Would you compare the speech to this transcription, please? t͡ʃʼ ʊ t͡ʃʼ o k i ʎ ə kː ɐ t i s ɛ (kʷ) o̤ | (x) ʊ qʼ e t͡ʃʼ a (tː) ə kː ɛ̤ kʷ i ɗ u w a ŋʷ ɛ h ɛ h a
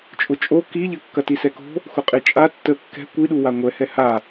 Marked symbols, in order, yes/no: no, yes, yes

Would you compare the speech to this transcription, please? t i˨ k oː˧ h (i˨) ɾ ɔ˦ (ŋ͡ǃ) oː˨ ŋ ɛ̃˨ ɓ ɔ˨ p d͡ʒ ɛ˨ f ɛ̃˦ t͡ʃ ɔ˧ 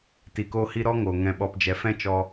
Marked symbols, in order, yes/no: no, no

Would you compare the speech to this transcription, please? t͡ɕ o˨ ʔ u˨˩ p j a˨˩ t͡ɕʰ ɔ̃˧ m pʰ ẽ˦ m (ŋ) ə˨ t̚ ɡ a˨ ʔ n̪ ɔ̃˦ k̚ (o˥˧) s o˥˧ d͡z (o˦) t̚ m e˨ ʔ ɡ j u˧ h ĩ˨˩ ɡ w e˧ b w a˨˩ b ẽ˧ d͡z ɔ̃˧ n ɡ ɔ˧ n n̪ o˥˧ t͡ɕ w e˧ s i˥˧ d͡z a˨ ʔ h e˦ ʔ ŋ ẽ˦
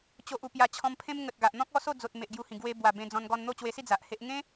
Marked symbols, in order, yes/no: yes, no, no

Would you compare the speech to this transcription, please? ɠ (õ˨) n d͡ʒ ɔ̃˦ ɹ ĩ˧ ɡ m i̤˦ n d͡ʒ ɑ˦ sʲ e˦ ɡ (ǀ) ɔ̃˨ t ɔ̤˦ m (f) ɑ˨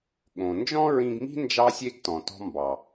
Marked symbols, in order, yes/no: yes, no, no

